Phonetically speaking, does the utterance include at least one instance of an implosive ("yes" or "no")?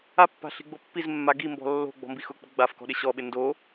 yes